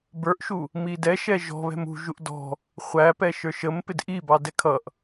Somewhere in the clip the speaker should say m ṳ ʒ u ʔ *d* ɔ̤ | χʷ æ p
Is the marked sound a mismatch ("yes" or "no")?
no